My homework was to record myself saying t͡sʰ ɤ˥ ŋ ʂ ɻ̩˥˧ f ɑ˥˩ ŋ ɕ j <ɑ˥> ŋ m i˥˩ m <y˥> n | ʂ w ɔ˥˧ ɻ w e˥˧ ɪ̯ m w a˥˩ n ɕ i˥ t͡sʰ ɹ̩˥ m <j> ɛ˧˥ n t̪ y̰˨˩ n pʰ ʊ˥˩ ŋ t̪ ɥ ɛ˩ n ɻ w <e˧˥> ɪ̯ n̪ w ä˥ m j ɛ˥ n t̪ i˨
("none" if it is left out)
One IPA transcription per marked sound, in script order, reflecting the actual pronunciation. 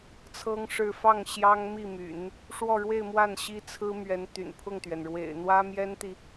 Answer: ɑ˥, y̰˨˩˦, ɥ, ḛ˨˩

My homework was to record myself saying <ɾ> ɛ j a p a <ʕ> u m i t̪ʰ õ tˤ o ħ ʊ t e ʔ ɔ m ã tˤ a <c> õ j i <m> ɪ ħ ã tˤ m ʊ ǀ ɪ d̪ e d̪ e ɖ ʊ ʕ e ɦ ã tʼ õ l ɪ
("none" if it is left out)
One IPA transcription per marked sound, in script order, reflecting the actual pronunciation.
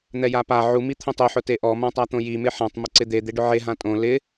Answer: n̪, ʕ, t̪, m

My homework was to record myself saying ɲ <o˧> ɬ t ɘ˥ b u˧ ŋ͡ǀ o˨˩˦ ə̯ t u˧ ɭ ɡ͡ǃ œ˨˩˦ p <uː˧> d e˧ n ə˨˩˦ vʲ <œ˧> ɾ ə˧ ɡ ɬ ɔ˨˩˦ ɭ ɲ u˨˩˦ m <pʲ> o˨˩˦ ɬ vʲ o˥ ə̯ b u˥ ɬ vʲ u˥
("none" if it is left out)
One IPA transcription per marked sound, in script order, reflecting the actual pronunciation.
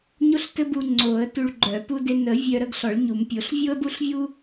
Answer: o˥, u˧, œ˧, pʲ

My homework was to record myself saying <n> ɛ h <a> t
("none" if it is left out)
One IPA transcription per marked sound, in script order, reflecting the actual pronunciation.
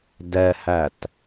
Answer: d, æ

